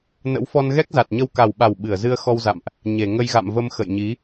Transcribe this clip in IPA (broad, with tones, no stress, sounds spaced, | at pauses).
n ə̰˧˥ w f ɔ˧ n ɣ ɛ˦˥ k̚ z a˨˩ t̚ ɲ ə˧ w k a˨˩ w ɓ a˨˩ w ɓ ɨ˧˩ ə̯ z ɨ˧ ə̯ x ɔ˧ w z a̰˧˨ m ʔ | ɲ e˧˩ ŋ ə˧ j ɣ a̰˧˨ m v ə˧ m x ə̰˧˨ j ɲ i˨˦